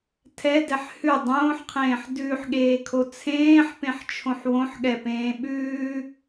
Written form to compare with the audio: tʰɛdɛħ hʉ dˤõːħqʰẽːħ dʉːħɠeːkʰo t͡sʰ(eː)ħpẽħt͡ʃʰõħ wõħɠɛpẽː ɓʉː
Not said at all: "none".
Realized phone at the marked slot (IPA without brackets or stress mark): ẽː